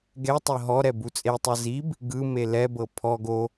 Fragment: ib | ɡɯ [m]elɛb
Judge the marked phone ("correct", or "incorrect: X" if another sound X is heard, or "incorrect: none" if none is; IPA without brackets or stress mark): correct